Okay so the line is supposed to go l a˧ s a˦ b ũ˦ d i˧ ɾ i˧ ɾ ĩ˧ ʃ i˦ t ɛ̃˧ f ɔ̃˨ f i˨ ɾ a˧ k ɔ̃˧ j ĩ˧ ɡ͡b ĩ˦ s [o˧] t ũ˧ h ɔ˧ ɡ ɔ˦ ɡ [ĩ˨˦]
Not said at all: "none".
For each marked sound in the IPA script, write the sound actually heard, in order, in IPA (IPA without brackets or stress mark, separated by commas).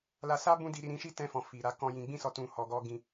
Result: ɔ˧, ĩ˦